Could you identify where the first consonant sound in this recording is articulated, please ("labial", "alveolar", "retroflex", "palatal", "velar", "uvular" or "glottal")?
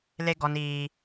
alveolar